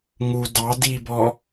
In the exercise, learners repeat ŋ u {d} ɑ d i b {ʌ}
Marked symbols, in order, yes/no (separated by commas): yes, no